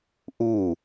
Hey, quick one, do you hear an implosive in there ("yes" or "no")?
no